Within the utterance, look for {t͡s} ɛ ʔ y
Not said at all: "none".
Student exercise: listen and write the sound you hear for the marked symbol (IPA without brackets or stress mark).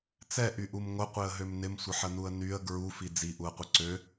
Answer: t͡s